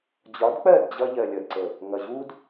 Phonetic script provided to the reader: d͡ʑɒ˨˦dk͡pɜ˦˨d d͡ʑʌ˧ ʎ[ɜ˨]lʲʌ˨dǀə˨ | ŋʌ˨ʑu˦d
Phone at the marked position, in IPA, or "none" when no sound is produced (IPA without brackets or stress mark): ɜ˨